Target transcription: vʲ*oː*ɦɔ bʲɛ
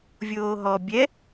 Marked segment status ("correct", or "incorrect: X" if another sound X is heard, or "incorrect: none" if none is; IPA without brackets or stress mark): correct